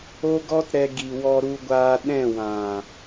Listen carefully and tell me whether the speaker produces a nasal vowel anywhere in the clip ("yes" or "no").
yes